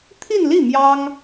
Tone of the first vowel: falling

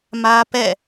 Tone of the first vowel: high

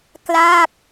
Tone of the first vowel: falling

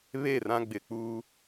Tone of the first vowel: falling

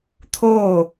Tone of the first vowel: falling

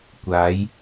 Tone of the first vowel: rising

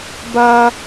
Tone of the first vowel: high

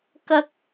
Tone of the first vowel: high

